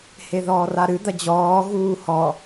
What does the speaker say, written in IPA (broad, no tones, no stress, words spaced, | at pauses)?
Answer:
heðɔːraɾɨ d̪ɐd͡ʑɔː ɣuːhɔ